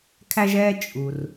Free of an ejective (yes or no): no